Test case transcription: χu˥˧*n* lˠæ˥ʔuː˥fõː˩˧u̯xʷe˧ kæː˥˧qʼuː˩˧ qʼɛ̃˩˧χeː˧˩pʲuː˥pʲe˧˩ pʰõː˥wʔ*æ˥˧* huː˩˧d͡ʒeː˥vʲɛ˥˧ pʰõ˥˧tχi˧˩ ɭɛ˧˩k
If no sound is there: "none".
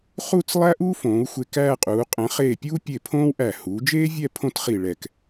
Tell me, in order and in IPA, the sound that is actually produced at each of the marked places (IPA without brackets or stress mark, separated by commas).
t͡s, æ˧˩